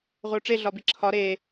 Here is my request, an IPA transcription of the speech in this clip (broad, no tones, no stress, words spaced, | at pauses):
ʁʷeʊ̯ʈ͡ʂe ɮɒbiǁʰɒ ɾe